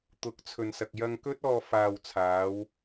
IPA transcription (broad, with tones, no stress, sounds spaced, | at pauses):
t̪ ʊ˨˥ k̚ t͡sʰ ɵ˨ n s ɐ˨ k̚ j ɐ˧ ŋ k ɵ˥ t̚ ɔː˧ f aː˨ w t͡sʰ aː˨˧ w